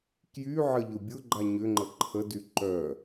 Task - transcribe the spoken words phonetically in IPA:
k j y ʕ ə ʎ ʊ bʲ ʊ ɡ͡ǃ a ɲ ʏ ŋ͡ǃ ə ǃʰ ə d y ǃ œ

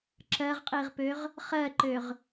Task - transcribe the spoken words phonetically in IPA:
ǁ ɜ ʁ qʼ i ʁ p ø ʁ | χ ɜ ǃ ø ʁ

